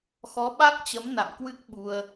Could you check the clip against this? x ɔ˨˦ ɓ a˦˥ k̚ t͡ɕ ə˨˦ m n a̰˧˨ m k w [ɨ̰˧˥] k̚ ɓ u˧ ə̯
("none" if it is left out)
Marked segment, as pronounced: ɨ˦˥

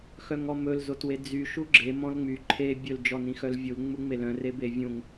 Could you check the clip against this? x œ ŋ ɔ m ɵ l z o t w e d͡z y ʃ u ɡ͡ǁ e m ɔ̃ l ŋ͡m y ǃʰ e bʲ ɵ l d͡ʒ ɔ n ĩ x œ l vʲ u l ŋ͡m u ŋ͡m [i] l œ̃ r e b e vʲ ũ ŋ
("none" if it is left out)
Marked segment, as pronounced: e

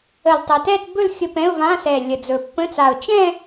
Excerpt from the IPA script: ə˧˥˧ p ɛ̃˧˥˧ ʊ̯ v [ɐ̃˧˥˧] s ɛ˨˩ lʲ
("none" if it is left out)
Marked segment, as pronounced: ã˧˥˧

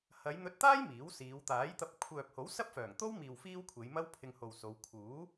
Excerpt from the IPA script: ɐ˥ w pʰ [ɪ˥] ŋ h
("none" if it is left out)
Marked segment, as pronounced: ɪ˧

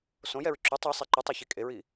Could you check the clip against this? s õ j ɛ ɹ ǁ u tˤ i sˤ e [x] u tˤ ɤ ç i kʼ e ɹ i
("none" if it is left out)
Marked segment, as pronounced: ǃ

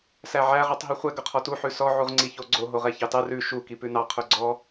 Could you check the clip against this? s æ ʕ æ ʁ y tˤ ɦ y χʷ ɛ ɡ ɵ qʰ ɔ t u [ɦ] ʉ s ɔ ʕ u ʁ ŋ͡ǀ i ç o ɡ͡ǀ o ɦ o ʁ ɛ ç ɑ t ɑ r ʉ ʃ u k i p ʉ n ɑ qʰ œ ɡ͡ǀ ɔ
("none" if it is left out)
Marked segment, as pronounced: ħ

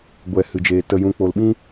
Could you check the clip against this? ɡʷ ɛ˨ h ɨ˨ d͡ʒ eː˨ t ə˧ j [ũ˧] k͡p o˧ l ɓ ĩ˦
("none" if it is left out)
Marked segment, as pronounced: ũ˧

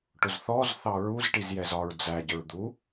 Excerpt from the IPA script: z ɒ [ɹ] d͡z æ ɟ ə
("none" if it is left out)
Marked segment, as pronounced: ɹ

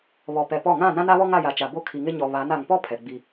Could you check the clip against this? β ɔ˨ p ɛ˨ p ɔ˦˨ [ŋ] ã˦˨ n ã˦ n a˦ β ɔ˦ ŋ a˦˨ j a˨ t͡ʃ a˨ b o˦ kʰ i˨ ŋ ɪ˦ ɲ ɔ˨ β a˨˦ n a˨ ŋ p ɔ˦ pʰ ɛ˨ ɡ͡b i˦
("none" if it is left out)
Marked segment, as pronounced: ŋ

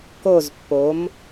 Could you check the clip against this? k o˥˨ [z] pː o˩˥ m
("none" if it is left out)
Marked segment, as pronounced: z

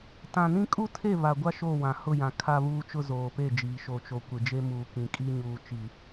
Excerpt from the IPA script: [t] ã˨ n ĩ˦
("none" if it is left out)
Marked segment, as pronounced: t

